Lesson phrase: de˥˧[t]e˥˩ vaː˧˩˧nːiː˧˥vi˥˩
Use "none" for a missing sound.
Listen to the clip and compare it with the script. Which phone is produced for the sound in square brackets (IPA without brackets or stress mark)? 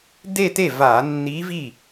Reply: t